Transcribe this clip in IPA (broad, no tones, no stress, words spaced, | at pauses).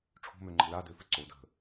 ʈ͡ʂʰo̤møŋ͡ǃə̤ ladøfə ǀo də̤